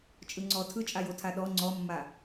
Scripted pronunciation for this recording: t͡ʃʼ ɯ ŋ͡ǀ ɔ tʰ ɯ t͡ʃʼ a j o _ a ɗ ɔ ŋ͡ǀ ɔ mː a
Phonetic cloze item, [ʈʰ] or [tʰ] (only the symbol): tʰ